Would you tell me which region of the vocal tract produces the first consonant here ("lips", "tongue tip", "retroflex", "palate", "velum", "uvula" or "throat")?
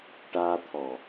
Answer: retroflex